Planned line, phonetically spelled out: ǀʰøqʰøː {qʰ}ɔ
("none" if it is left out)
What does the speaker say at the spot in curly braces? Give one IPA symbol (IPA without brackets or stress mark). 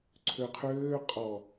qʼ